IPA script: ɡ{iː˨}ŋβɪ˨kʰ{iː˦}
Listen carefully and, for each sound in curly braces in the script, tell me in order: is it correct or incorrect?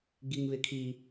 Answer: incorrect: i˨, incorrect: iː˨

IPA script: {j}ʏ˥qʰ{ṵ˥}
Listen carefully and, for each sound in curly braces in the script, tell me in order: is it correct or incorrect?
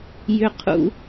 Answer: correct, correct

